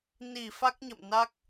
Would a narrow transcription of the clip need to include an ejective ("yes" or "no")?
no